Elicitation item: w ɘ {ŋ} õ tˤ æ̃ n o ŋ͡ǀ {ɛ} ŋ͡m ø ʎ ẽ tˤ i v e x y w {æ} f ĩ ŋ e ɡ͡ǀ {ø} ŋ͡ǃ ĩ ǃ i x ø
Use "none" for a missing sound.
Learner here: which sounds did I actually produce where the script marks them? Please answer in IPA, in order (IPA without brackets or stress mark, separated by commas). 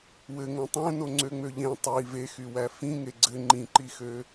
ŋ, ø, æ, ɘ